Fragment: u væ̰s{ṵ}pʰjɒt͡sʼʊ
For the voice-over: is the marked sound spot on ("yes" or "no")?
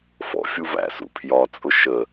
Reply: yes